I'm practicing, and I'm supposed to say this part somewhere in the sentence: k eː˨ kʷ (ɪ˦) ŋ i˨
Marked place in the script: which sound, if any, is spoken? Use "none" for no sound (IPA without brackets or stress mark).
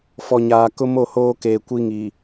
i˦